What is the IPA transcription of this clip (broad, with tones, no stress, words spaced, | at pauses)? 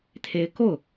t̪ʰe˧˥ɪ̯ko˥˩ʊ̯